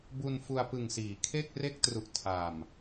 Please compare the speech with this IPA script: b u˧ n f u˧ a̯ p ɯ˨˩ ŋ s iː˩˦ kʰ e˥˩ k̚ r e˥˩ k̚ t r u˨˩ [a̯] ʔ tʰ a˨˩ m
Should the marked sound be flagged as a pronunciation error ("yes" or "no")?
yes